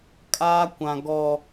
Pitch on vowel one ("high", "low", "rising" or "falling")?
high